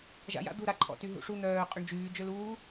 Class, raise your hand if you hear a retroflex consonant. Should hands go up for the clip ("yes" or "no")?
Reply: yes